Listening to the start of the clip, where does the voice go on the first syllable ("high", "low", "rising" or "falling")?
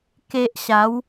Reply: low